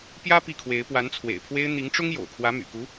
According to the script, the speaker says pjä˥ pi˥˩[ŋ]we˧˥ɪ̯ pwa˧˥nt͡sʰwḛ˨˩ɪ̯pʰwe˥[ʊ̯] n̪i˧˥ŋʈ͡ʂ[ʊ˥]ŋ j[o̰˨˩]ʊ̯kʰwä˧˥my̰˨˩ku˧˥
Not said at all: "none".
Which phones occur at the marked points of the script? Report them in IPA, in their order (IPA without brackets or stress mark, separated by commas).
kʰ, ɪ̯, ʊ˥, o̰˨˩